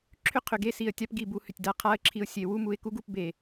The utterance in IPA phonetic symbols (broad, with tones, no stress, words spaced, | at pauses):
ǁʰʏ˦qʰʏ˨ɡe˦si˨ə̯ tʲa˦pɡi˦˨bu˧ hʏ˨tʲda˧qʰa˦ə̯ǁʰi˧ʊ̯ sʲe˨wu˦mu˧ɪ̯ ku˦ɡu˧p be˨